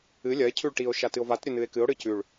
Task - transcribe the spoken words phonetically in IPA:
ɨ lʲ ɐ e̯ cʰ ʉ ɭ ʈ i o̯ ʃ a t ɨ o̯ v a t ɾʲ ɵ n ɨ e̯ k ɨ o̯ ɽ ɨ c ʉ ɭ

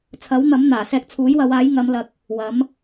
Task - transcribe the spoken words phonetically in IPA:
t͡sʰ ɐ˨˥ w n̪ ɐ˨˥ m n̪ aː˨˩ s ɛː˧ k̚ t͡sʰ uː˨˥ j w ɐ˨˧ w aː˨˥ j ŋ ɐ˨˧ m l ɐ˨ k̚ | w ɐ˨˥ m

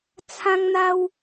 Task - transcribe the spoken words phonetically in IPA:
t͡sʰ ã˦ ŋ n̪ a˦ w

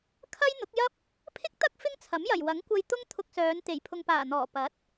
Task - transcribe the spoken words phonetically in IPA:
kʰ ɐ˥ j n̪ ʊ˨˥ k̚ j ɐ˥ p̚ | pʰ ɪ˥ k̚ t̪ ɐ˥ k̚ f ɪ˥ ŋ t͡sʰ ɐ˨˥ m j ɐ˨˩ j w ɐ˨˥ ŋ kʷ ɐ˧ j t̪ ʊ˥ ŋ t̪ʰ ʊ˧ k̚ s œː˨˧ n t̪ e˨˩ j pʰ ʊ˨ ŋ p aː˨˩ n̪ ɔː˨˩ p ɐ˨˥ t̚

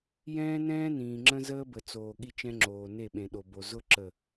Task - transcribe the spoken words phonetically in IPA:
j ɛ̃ː˦ n ɛ̃ː˦ n ĩː˨ ŋ͡ǁ ə̃˦ z əː˦ b ə˨ t͡s oː˨ ɠ i˦ t͡ʃ ɛ̃˦ ŋ͡ǁ oː˨ n e˦˨ ɓ ẽ˨ ɗ o˨ b o˨ z ʊ˦ ǁ ə˦˨

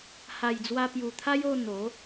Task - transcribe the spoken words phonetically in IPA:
h a˨˩ j d͡z w a˧ p j u˨˩ t̪ʰ a˦ j o˥˧ n̪ o˨˦

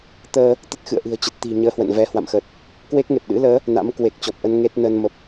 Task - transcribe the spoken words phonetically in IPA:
t̪ əː˧ | t̪ ə˦˥ t̚ x ɨ̰˧˨ ə̯ ʔ ɨ̤˨˩ ə̯ t͡ɕ ə˨˩ t̚ t̪ i̤˨˩ ɲ əː˧ h w ə̰˧˨ n v ɛ˧ h w a̰˧˨ m x ə˨˩ t̚ | k w e˦˥ k̚ ŋ e˨˩ p̚ ɗ ɨ̰˧˥ l əː˨˦ | n a̰˧˥ m k w e˨˩ k̚ t͡ɕ ɔ˨˩ p̚ ʔ ə˧ n ŋ e˦˥ t̚ n ə˧ n m ə˨˩ p̚

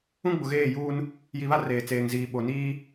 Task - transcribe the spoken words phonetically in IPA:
ũ˦ ɡ͡b ʊ˨ ɣ eː˦˨ j uː˦ n | j i˨ β a˦ r eː˨ t͡s eː˨ ŋ z iː˨ ɓ o˨ n iː˦

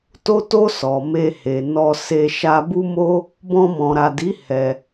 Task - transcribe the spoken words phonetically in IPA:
t o˧ t o˧ s ɔ˨ m e˧ h e˨ n ɔ˧ s e˧ ʃ a˧ b u˦ m o˦ | b ɔ̃˧ m ɔ̃˨ ɾ a˨ d i˨˦ h ɛ˧

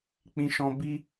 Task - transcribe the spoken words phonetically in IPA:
k͡p ĩ˧ ʃ ɔ̃˧ b i˦

